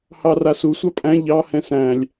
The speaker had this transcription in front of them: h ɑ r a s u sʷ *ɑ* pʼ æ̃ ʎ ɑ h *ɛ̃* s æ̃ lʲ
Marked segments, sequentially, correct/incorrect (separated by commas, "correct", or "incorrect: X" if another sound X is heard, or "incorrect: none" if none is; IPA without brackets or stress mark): correct, correct